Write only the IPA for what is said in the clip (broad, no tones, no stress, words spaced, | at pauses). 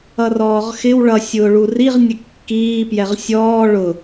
ʌrɔːʁxɪw ɭʌsʲʊːɭu riʁnʲə kːiːpjɛʁ sʲɔː ɭʊ